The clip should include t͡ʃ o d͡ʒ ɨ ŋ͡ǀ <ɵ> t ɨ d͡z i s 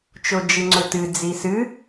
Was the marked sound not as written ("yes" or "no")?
no